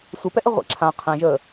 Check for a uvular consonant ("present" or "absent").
present